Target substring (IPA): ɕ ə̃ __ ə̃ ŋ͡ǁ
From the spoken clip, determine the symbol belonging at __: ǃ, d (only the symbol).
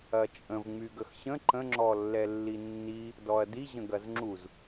ǃ